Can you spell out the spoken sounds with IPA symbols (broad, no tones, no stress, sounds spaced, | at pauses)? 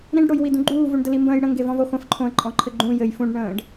ɾ ĩ ɖ ɽ o j w i d ũ ɡ͡ǃ uː v u ɳ d ə l i m b ə̃ː j ɽ ə̃ ŋ ɡ e v ɔ̃ v o χʷ ə̃ f ǃʰ õ ə̯ ǃʼ ɔ̃ ǃʰ ɘ ɡ͡ǃ ũ j ɘ j f ũ ɖ ɳ ə̃ː ɖ